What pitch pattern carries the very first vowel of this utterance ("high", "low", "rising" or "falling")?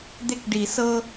high